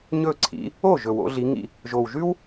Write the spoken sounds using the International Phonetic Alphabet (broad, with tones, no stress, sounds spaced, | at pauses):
ɲ ɵ˥˩ ǀʰ ḭ˨˦ | o˥˩ ʒ ɵ˨˩ w o̰˨˦ ɮ i˨˦ ŋ ḭ˥˩ | ʒ o˨˩ w ʒ ʉ˥ w